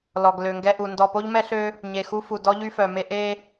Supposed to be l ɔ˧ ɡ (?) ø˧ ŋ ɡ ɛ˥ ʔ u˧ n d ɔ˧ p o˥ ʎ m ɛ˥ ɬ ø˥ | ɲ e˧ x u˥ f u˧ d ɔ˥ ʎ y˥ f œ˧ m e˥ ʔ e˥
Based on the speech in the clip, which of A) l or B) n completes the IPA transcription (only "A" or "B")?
A